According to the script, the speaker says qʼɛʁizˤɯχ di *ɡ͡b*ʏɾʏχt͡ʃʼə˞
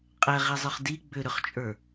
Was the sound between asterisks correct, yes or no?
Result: yes